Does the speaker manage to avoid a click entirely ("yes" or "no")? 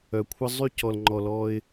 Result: no